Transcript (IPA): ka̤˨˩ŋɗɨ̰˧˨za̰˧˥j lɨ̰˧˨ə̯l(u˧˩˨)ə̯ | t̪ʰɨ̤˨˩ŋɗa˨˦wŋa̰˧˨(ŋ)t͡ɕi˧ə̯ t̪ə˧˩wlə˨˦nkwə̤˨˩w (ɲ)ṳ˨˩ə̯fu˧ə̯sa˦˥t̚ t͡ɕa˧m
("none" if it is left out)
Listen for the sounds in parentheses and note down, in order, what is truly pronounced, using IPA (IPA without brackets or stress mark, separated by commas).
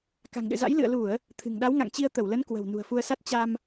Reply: u˧˩˨, ŋ, n